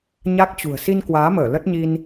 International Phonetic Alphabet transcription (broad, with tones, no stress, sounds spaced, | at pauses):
ɲ a˦˥ k̚ t͡ɕ ṳ˨˩ ə̯ s i˧ n k w aː˨˦ m əː˧˩ l ə˦˥ t̚ ɲ i˧ n